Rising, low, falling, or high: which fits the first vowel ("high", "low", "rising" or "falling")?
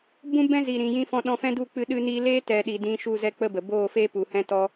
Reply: high